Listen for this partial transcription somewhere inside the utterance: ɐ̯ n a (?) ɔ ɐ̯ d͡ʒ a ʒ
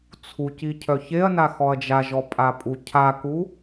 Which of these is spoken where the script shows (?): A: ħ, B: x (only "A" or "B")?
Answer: B